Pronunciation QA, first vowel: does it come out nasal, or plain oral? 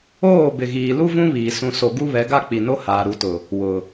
oral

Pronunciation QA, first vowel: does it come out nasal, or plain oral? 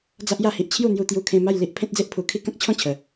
oral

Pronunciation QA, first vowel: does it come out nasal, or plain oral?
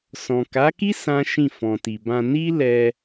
nasal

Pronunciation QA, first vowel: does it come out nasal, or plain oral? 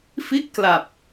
oral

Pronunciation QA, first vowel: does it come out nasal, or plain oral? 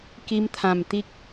oral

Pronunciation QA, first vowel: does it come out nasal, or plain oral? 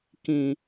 nasal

